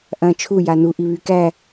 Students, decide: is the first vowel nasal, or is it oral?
nasal